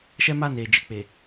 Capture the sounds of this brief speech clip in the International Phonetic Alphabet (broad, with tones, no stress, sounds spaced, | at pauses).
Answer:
ʃ ɛ˦ m a˦˨ n eː˨ d͡ʒ ɪ˨ k͡p e˨